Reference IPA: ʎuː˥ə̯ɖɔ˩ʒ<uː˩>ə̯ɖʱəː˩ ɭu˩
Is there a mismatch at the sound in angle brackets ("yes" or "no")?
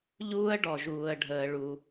no